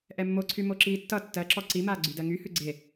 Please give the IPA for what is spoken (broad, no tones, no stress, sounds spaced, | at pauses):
ʔ ɛ mː o ǀʰ y m o ǁ iː tː ʌ tː ɜ ǁ ɔ ǀ i m aː ɡ͡ǀ y d ɜ ŋ y h ʉ ɡ͡ǀ e